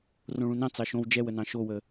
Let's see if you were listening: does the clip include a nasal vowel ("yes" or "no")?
yes